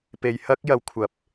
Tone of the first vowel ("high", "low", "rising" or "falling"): low